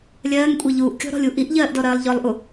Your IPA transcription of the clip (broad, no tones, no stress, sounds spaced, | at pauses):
lʲ ɜː ŋ kʷʼ e ʎ uː ʔ kʲ ɔ̤ ɾ ɔ̤ lʲ u ʔ i ʔ ʎ ɜː ʔ d ɔ ɾ ɜː lˠ ʎ ɔ lˠ ʔ u